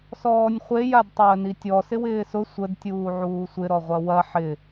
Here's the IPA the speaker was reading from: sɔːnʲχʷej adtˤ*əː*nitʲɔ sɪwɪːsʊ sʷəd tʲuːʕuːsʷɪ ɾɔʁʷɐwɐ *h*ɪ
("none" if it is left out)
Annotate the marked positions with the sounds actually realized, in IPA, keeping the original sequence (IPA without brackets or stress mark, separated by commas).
əː, ħ